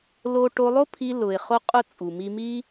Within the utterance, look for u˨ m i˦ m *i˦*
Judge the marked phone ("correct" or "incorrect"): correct